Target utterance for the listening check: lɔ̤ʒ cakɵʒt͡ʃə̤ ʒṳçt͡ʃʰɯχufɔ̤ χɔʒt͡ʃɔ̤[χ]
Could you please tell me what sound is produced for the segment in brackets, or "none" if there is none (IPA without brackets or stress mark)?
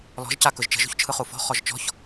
ç